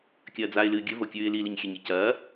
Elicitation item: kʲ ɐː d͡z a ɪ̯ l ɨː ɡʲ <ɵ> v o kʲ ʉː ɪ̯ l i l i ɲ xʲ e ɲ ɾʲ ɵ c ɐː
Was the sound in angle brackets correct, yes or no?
yes